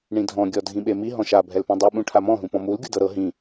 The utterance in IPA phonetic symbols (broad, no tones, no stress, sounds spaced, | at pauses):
ɳ ĩ dʱ ɔ̃ ɡʲ ɔ dʱ ĩ ɓ e m i ɦ ɔ̃ ʃ a bʱ ɛ l p ũ dˤ i ɓ ũ ʈʰ a m ɔ̃ ɦ ũ p ɔ̃ m u l ɡʲ u d ɤ ɾ ɤ ɦ ĩ